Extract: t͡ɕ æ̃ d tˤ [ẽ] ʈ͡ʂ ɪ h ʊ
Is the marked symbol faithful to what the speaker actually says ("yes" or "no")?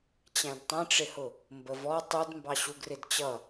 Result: no